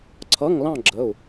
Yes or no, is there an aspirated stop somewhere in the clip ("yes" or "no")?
yes